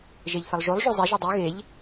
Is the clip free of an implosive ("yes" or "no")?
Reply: yes